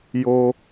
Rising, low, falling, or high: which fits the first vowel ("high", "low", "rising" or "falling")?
high